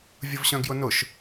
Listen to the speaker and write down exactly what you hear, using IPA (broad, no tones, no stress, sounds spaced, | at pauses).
vʲ ʊ v ɕ œ̃ ɡ j ʊ n ʊ ʃ